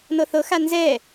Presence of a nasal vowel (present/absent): absent